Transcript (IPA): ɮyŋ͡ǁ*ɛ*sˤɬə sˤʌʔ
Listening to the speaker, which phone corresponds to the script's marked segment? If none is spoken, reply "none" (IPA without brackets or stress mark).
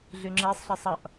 ɛ